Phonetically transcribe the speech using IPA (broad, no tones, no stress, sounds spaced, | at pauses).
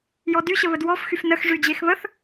j ɔ d y ɕ ə β ə d w ɔ f x y f n ə x ʐ y d͡ʑ e x β ə θ